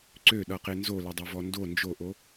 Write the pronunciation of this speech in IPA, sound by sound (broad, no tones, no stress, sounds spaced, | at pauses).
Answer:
ǀ ø ɗ ʌ q e n z o l ɛ dˤ o v ɔ n d o n d͡ʒ o ʔ o